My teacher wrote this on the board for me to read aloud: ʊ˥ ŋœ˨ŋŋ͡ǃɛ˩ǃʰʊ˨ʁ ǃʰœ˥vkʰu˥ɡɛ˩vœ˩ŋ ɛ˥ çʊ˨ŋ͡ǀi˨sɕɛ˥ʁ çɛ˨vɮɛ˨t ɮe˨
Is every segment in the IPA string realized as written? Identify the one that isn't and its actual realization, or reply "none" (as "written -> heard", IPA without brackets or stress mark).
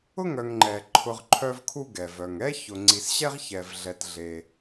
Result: none